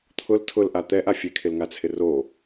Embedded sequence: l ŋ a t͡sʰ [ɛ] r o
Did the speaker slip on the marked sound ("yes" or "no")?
yes